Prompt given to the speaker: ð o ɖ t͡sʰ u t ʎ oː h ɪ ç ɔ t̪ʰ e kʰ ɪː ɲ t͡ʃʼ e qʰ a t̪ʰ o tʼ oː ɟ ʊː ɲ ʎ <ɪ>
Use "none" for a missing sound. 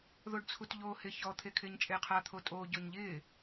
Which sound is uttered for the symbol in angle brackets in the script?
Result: ɪː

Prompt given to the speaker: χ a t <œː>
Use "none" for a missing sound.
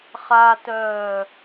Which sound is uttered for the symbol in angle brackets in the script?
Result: œː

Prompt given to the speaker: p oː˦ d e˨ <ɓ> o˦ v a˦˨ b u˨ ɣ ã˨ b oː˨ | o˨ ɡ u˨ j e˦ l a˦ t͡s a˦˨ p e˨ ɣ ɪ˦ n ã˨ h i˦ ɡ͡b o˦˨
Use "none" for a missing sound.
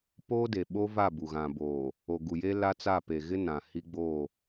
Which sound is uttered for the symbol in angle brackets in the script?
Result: ɓ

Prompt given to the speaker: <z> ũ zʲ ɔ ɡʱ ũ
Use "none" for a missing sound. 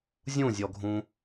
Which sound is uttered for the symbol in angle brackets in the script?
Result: zʲ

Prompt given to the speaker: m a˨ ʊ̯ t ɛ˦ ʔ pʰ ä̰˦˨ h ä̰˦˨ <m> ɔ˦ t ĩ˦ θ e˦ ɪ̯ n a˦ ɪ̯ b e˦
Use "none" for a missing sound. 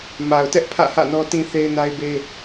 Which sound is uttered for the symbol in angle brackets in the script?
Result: n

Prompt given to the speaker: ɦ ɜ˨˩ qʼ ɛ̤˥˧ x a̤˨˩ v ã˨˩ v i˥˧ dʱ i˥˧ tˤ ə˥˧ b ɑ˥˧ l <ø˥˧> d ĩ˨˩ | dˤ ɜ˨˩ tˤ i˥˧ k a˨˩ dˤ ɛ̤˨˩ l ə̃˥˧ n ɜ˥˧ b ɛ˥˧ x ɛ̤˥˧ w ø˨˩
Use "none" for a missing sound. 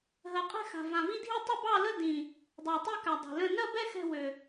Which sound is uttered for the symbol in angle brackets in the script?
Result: ə˥˧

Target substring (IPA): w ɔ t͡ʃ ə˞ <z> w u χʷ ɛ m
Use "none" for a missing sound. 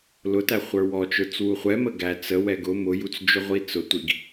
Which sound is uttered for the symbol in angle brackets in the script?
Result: t͡s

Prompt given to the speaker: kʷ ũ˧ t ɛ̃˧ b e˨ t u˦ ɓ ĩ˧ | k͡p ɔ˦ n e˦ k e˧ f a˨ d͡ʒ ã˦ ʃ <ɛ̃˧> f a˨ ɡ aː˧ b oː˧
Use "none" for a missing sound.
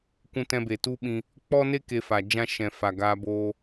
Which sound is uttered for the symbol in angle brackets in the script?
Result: ɛ̃˨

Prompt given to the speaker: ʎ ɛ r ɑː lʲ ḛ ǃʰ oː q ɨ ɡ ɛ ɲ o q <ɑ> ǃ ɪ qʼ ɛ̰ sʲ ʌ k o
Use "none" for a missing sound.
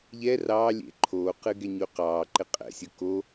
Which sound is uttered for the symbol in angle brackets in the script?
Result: ɑː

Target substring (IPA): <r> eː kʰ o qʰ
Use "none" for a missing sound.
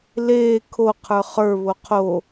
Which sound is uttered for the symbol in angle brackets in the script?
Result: l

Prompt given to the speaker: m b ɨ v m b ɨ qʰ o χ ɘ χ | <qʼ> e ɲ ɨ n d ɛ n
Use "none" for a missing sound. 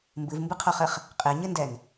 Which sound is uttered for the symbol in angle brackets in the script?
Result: qʼ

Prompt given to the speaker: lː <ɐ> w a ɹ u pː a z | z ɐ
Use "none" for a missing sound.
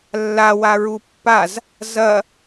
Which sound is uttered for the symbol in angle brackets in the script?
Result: a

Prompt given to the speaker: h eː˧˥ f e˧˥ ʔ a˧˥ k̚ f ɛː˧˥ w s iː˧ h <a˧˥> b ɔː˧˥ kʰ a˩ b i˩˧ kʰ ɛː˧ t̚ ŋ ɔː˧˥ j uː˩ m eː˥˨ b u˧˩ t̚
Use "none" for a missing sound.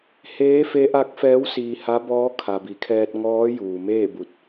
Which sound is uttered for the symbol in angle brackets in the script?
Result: a˧˥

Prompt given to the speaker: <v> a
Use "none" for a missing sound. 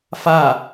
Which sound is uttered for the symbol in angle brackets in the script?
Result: f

